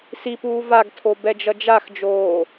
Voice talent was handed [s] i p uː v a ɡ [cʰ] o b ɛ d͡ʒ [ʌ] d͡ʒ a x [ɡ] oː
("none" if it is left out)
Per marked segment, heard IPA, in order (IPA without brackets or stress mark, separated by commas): s, tʰ, ʌ, d͡ʒ